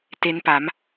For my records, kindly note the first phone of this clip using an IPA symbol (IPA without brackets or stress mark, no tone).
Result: t